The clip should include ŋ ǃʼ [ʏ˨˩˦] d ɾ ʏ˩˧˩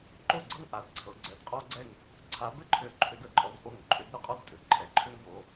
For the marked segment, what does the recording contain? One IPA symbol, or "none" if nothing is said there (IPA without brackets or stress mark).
ʏ˨˩˦